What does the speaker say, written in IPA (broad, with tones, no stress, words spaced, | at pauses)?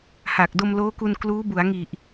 ha˨˩k̚ do˧mloː˦˥ku˧n kluː˦˥ bu˩˦a̯ŋi˨˩ʔ